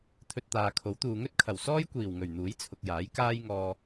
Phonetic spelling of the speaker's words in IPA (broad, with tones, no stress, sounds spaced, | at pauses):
t̪ʰ ɵ˧ t̚ t̪ aː˨ kʰ o˨˥ w t̪ uː˨ ŋ ɵ˥ t̚ kʰ ɐ˨˩ w s ɔː˥ j kʷ iː˨˩ w ŋ ɵ˨˩ ɥ n̪ uː˨˥ j t͡sʰ ʊ˨ k̚ j aː˨˥ j k aː˥ j ŋ ɔː˧